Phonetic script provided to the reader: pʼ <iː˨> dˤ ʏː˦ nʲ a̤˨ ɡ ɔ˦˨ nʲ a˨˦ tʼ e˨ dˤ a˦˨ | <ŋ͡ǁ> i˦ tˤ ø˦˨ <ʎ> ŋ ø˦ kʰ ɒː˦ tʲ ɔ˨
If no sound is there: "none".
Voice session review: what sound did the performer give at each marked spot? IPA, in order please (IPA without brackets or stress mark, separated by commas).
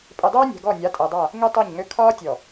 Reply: i˨, ŋ, ɲ